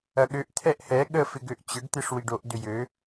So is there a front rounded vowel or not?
yes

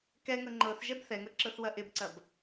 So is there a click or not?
yes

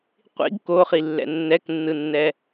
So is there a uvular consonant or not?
yes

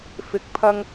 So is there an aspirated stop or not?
yes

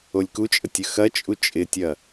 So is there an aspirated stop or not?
no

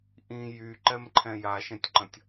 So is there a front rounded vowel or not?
yes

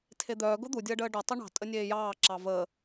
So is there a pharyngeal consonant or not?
no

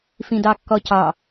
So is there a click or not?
no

